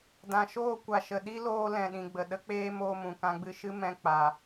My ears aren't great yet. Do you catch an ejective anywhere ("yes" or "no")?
no